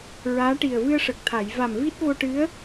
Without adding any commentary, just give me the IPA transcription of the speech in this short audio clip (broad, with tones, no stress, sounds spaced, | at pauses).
ɹ aː˧˥ ʈ i˨˩ ə̯ v ɨ˧ ə̯ ʂ ə˨˩ k̚ t̪ʰ a˨˩˨ j v a˨˩ m v i˦˥ t̚ v o˧ ʈ ɨ˧˥ ə̯